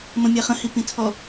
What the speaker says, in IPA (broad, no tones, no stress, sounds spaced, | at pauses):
m ə̃ mʲ æ χ ə̃ h i p ĩ tʰ ɔ